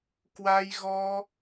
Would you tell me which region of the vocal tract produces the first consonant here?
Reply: velum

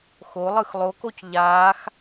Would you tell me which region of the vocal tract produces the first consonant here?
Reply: velum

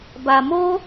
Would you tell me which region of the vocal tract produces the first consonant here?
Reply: lips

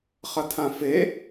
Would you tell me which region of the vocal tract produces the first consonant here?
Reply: uvula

